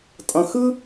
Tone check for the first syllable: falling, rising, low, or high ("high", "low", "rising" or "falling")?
low